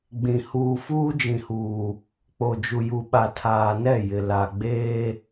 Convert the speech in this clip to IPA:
ɡ͡bĩ˨ huː˨fuː˦d͡ʒĩ˨huː˨ | k͡po˨d͡ʒu˨ju˨ ɓa˨tʰaː˨nɛ˦˨ jɪ˨ la˨ ɡ͡beː˦

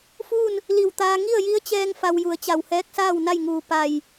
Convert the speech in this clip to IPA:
fuː˥˨n | li˧˩wt̪aː˧ ŋi˥˨ə̯ji˧˥ə̯t͡ɕɛː˧ŋ fa˧wju˩˧ə̯t͡ɕa˧˩w hɛː˧˥k̚saː˥˨wna˥˨jŋuː˧˩ pa˧˩j

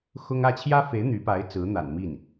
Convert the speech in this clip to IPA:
xʊ˥ŋ ä˥˩ t͡ɕʰjä˥fe˧˥ɪ̯ n̪y˧˥pa˧˥ɪ̯ t͡sɹ̩˧˥n̪a̰˨˩nmi˥˩n

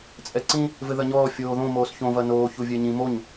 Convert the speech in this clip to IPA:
t͡sʼɛǀĩ | vɘðɐɲɔː fʲoːðõ moːsçõvɐ noːçu vʲɛɲĩ moɲ

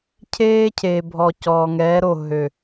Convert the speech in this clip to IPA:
cʰeː˦cʰeː˨bʱɔ˨ cɔː˨ŋɛː˨˦ɾo˦˨ ɦø˨

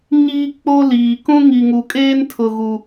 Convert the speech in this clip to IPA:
ɲiː˦k͡po˦liː˨ kũ˦ŋi˨ŋu˨kʼeː˦n tʰʊ˨ɣu˨

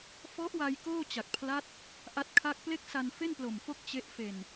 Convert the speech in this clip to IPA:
fɔ˦˥ʔwa˧j koː˥˩t͡ɕa˨˩k̚pʰla˦˥t̚ | ʔa˦˥t̚ kʰa˥˩k̚ ple˥˩k̚ sa˧nfe˥˩nplo˨˩mfo˦˥k̚ t͡ɕe˦˥ʔ fe˨˩n

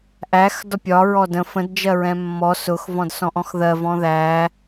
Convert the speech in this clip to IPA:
ʔæx dɒpʲɒɹɔ də̃ fə̃dd͡ʒɜ ɹɛ̃mːɔ sʊx vɔ̃dsɔ̃ʔɔ̃xðɜ vɔ̃ðæ

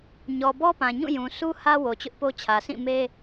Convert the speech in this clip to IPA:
ɲɔ˨bɔ˦pã˨ ɲũ˦˨jũ˨su˦ hä˦ wo˨ t͡ɕʊ˦ʔpo˦t͡ɕʰä˨ sʰĩ˦˨me˦

